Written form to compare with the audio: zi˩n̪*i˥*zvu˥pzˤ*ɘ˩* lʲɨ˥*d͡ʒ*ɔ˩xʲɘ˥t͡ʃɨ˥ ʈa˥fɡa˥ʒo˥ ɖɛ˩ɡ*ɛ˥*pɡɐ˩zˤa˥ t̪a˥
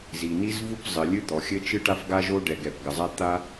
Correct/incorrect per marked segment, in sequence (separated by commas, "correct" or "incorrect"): correct, correct, incorrect, incorrect